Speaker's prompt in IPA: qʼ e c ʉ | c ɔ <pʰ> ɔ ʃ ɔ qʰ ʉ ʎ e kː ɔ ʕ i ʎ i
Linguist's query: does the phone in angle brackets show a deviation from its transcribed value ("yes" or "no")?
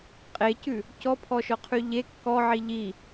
no